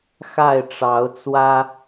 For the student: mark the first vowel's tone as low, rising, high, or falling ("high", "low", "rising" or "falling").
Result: falling